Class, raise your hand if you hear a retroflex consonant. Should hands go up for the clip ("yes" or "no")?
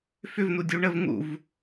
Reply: yes